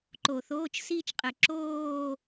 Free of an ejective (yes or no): no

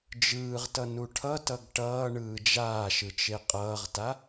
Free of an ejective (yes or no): no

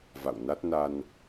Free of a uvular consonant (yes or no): yes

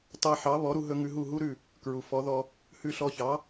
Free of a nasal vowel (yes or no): yes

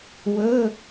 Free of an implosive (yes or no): yes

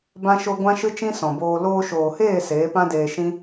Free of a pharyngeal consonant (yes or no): yes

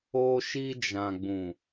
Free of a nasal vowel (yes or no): no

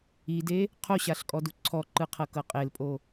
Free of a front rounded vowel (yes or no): yes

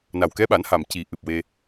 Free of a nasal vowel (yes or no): yes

